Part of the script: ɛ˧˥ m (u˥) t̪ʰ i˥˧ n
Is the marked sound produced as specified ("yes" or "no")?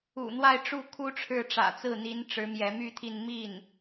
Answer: no